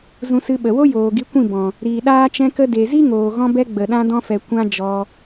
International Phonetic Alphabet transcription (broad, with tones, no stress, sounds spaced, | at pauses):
z ũ˧ s ɨ˧ ɓ ə˨ w o˦ j oː˨ ɡ i˨˦ kʷ ĩ˦˨ b ɔ̃˨ | ɾ iː˨ ɗ aː˧ t͡ʃ ɛ̃˧ k ə˧ d e˨ z i˦ ŋ oː˨ ɣ ɔ̃˧ b ɛ˧ ɡ͡b ə˨ ɗ ã˧ d ɔ̃˧ f ɛ˨ kʷ ã˦ d͡ʒ ɔ˧